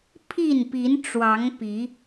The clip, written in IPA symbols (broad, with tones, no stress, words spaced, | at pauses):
pʰi˥˨npi˨˦nʈ͡ʂwɑ˨˦ŋ pi˨˦